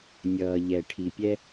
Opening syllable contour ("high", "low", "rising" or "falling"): low